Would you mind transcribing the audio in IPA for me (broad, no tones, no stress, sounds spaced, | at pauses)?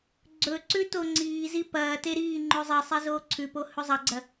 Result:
ɡ͡ǀ ɵ ǀ ʉ t o ŋ͡ǀ iː z i p ɐː t e ɾ iː ŋ͡ǃ ʉ zˤ i sˤ i z oː ǀʰ ʉ p o h ʉ zˤ ɐ ɡ͡ǀ ɐ